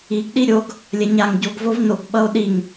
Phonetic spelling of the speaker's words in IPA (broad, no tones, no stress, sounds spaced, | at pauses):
i ɡ ɗ i ɾʲ o ɡ | lʲ ɛ ɲ a ŋ ɟ o ɡ v o v n o ɡ ɓ ʌ o̯ ɗ i ŋ